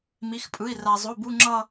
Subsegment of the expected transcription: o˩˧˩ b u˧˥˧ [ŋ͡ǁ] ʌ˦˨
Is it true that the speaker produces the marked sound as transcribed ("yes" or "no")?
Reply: yes